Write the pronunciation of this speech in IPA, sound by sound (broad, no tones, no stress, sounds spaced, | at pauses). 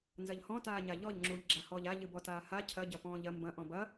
n z ɐ ʎ h ɔ̃ t aː ɲ a ʎ ɔ ʎ ŋ͡ǁ uː ʎ ɡ͡ǁ a h ɔː ʎ a ʎ ɨ b ɔ t aː h a cʰ ɐ ɟ ɐ p ɔ̃ː ʎ ɐ m b ɐ̃ ʔ ɔ̃ b ɐ